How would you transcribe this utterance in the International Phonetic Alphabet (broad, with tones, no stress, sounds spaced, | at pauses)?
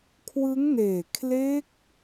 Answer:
kʰ w ɯ˦˥ ŋ n eː˨˩ kʰ l e˦˥ k̚